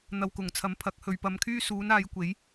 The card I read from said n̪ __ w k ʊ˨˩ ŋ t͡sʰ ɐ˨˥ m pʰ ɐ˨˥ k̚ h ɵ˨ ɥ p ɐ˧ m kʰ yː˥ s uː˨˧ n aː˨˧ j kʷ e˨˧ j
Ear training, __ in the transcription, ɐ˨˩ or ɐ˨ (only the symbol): ɐ˨